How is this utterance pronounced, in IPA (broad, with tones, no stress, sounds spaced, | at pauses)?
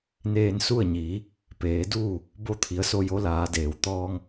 n eː˧ n s u˥˨ ə̯ ɲ iː˩˧ | p eː˩˧ d uː˥˨ | b o˧ t̪ʰ i˩˧ ə̯ s o˧ j o˧˥ l aː˩˧ d eː˩ w t̪ ɔː˧ ŋ